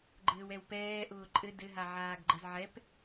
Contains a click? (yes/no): yes